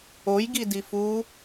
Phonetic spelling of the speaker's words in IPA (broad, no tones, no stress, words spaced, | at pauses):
ojɡi difu